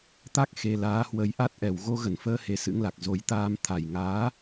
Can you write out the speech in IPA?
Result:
t̪a˦˥k̚ xe˧ laː˨˦hwə˧j ʔa˦˥t̚ʔɛ˨˩w ɣo˧ɣə˧˩nfəː˧ he˨˦sɨ̰˧˥ŋla˨˩k̚ zo˧j t̪aː˧m t̪ʰa˨˩jŋaː˨˦

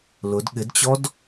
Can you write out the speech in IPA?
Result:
lʊd ɠɪdt͡ɕɔd

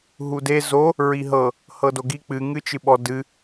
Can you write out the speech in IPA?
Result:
ɦude zo | ɹiɦɤ | hɤdoɡi k͡pɨ ŋɨt͡ʃɨɓɔ dɨ

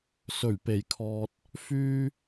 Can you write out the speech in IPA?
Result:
sɵ˨˩ɥpe˨˩jkʰɔː˨t̚ | fyː˧

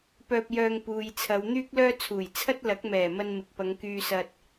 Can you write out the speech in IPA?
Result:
pœː˧p̚ jœː˧ŋ puː˨jt͡sʰɐ˨˧w n̪yː˥k̚lœː˥t͡sʰuː˨˩j t͡sʰɐ˥t̚lɐ˨˥k̚mɛː˨˩mɐ˧n mɪ˨k̚pɐ˨˧ŋ kyː˧sɐ˧t̚

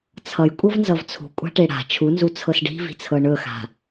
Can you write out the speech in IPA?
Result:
t͡sʰʌj kʷʼɤvnzʌvt͡sʰṳ kʷʼa̤ʈeɽa̤ t͡ʃʰunzu t͡sʰɤsɖi̤vi̤t͡sʰɤ ɳɵxa̤

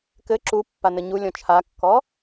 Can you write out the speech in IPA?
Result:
kɘ ǁupːanɘ ɲulʲɔ̃ t͡ʃʰakːɔ

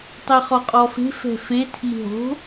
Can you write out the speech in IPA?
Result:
tˤeχɔqʼɔfe̤ fɛ̤fetʰi ɦo̤

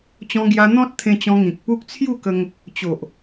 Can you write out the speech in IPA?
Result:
t͡ɕɔ̃˧ɡja˧ n̪ɔ̃˦t̚ t̪ʰẽ˧ t͡ɕɔ̃˧ŋĩ˨k̚pu˦k̚ t͡sʰju˥˧kə˧ŋ | t͡ɕo˨ʔ

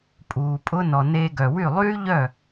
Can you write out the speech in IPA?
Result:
pʼuː˩pʼʊ˥ nɔ˩neː˧ɡœ˩ wy˥˩ lˠyː˥ʎœ˥˩

